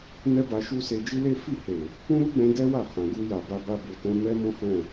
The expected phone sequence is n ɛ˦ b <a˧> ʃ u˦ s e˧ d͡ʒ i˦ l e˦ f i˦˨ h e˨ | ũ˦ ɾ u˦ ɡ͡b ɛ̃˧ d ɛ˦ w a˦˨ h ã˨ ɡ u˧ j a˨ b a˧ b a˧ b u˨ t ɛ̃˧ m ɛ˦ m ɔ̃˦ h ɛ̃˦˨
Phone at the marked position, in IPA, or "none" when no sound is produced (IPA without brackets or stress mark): a˧